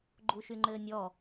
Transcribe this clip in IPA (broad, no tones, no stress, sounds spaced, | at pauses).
ɡ͡ǃ u ʃ y ŋ͡ǃ ɘ nʲ ɔ